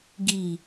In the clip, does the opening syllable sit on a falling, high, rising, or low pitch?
low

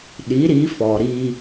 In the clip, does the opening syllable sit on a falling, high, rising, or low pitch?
rising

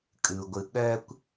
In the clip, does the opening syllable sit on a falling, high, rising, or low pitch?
low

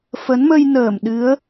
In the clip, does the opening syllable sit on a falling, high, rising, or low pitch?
rising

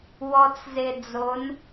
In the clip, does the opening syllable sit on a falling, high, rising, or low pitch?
low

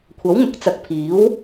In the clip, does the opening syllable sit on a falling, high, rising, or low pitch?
rising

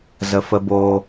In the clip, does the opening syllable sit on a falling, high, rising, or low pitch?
low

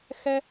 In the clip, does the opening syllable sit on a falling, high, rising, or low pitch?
high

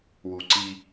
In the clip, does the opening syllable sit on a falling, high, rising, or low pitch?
low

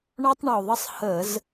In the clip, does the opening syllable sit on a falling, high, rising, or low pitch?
high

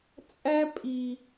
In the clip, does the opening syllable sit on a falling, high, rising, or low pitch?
high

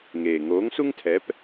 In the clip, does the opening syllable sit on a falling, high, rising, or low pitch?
low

